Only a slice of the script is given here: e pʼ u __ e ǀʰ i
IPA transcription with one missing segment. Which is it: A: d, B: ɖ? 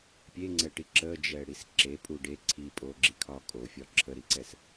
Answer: B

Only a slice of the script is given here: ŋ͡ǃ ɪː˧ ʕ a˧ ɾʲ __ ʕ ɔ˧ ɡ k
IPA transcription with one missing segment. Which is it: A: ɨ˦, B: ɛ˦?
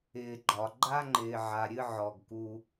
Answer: A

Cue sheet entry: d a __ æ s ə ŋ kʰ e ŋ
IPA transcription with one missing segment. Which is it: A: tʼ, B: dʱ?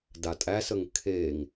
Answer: A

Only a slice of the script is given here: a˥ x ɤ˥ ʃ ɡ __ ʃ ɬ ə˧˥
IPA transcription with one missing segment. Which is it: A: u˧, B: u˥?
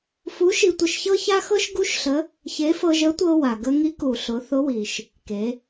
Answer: B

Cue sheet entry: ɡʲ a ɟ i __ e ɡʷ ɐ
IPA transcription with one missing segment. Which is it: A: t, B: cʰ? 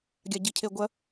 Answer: B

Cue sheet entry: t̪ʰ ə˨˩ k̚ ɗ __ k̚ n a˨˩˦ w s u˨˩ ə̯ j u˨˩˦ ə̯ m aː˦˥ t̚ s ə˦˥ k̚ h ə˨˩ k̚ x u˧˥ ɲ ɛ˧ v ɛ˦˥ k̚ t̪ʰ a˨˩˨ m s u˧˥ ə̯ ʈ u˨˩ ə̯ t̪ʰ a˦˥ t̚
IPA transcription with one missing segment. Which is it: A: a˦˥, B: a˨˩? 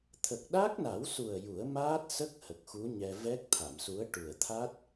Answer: A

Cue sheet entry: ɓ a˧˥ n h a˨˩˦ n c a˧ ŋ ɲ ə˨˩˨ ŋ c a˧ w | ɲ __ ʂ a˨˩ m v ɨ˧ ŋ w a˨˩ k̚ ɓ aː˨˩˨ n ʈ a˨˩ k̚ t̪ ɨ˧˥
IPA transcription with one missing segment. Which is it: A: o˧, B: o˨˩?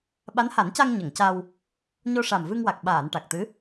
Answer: A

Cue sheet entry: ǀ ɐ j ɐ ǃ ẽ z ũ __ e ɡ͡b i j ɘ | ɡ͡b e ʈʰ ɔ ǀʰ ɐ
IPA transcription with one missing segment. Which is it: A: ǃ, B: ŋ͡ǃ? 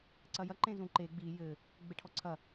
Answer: A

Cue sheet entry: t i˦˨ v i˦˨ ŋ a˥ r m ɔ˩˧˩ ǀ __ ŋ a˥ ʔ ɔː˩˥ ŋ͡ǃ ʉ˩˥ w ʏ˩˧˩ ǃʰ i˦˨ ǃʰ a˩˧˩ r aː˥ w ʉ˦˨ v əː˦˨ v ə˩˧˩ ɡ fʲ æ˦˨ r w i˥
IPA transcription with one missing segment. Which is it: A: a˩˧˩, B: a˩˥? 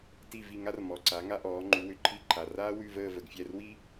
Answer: B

